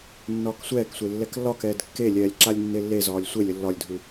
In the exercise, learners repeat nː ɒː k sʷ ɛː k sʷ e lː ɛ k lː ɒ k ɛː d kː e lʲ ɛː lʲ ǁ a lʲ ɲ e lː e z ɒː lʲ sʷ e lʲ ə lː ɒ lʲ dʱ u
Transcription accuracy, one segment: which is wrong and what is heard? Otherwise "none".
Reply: ɲ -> nː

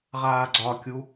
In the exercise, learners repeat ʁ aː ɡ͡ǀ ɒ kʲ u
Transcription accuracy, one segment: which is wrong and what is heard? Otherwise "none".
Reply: none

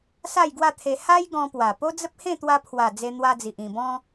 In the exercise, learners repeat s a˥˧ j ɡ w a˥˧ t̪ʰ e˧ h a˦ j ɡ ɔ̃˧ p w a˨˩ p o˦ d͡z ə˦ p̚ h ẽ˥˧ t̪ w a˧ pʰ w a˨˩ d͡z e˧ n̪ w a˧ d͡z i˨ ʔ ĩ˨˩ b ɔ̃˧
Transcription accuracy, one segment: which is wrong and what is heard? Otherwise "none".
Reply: none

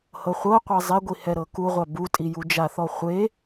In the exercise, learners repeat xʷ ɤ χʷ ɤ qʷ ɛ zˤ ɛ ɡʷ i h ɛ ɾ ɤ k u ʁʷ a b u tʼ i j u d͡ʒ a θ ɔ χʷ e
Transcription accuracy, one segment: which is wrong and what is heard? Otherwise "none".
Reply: xʷ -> h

